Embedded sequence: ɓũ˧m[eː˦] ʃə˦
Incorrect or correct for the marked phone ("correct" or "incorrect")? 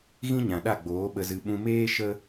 correct